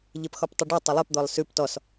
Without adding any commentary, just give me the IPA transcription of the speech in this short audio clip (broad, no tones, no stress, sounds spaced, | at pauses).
ʎ e p x ɔ p tˤ ʉ ɖ ʉ tˤ ɘ lˠ ɘ p d̪ ɔ lˠ s ʉ p t ɔ s